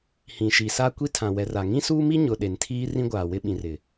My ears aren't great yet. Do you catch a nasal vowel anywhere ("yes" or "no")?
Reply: yes